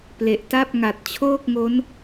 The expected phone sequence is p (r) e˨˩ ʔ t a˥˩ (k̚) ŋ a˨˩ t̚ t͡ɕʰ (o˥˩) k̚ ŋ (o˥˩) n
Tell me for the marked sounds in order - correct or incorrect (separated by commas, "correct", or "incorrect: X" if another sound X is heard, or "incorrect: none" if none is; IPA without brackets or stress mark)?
incorrect: l, incorrect: p̚, incorrect: oː˥˩, incorrect: o˦˥